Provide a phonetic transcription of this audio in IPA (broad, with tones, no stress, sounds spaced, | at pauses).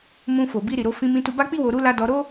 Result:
m ũ˧ f o˨ b i˧ ɾ i˨ ɾ o˧ f ĩ˧ m ĩ˧ t u˧ b a˦ k͡p i˦ w o˧ ɾ u˦ l a˧ d ɔ˧ ɾ o˦